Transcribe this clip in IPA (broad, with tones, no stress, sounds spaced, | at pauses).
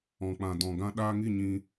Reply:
ɔ̃˨ k͡p ã˨ d ɔ̃˨ ɡ ã˧ ɗ aː˧ ŋ i˦˨ ɲ ĩ˧